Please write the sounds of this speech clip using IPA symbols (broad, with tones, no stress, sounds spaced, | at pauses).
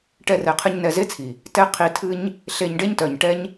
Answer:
ʈ ɛ˧ r ɛ˨ qʰ ɨ˧ ɲ n ɛ˧ z e˦ t͡sʰ i˨ | t ɛ˦ qʰ i˧ tʰ ɨ˦ ɲ | ɬ e˧ ɲ ɖ e˦ ɲ t œ˨ ɲ ʈ ɛ˦ ɲ